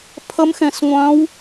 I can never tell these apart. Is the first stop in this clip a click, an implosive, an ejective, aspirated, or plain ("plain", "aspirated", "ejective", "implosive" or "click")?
aspirated